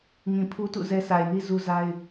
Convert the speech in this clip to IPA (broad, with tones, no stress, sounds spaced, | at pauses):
ŋ ĩ˨ pʰ u˦ t ṵ˦˨ z ɛ˦ s a˨ ɪ̯ n i˦ z u˦ z a˦ ɪ̯